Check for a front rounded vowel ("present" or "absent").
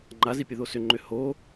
present